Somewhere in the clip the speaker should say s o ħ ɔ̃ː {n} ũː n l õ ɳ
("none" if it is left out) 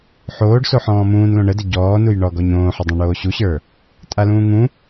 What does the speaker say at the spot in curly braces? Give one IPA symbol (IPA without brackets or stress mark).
m